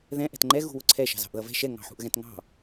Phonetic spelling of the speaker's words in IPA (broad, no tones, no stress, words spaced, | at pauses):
ðɛ̃ ʔɛ̤tŋ͡ǃɛ ɣṳwʊǀʰɛ ʃɑ̤zɑ̤ʔðʌvɛ̤ ʃɛ ŋɑ̤ħṳʔɣɛ̃tŋɑ̤